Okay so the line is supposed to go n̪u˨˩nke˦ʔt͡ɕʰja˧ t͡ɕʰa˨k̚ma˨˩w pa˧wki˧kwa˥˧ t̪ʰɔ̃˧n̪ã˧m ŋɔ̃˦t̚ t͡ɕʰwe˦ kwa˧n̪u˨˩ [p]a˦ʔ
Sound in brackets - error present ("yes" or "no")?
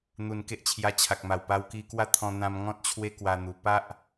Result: no